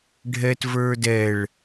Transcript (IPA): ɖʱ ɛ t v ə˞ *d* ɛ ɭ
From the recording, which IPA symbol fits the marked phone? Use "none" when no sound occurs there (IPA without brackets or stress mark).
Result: d